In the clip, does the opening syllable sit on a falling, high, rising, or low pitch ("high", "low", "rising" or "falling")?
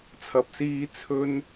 low